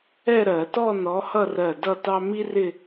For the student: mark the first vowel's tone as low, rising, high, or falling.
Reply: falling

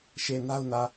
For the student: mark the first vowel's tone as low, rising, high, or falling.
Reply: low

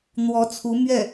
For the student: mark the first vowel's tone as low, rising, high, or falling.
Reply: rising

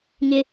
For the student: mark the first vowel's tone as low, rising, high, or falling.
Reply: low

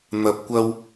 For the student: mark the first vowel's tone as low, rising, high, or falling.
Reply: low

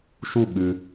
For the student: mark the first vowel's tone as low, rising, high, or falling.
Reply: falling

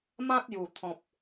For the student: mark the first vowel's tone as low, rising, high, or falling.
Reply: high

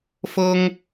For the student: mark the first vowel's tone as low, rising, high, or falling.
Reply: high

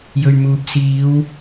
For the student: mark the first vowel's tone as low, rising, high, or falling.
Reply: low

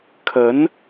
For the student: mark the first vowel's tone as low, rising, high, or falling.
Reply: rising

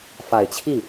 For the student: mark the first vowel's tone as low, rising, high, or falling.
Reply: low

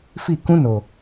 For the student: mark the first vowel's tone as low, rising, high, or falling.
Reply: falling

